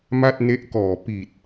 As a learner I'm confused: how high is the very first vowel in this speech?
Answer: low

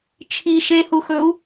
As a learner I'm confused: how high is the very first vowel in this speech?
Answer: high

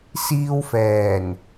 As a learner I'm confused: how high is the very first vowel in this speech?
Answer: high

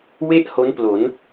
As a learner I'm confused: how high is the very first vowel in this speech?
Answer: mid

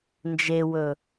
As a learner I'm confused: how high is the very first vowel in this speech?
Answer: mid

